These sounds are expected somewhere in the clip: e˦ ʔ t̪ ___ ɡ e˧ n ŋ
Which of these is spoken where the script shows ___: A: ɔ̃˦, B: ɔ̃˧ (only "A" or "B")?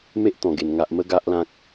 B